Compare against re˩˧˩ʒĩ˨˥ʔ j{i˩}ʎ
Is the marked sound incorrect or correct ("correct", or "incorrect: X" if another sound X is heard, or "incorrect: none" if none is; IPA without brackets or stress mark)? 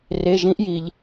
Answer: correct